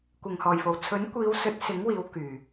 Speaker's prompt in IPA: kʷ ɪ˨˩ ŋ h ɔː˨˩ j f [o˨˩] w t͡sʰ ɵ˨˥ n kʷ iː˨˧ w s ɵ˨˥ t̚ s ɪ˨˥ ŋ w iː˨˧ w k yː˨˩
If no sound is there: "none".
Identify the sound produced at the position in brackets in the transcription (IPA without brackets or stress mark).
o˨˩